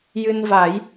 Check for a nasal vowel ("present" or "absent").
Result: absent